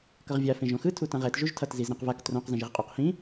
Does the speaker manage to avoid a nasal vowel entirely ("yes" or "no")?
no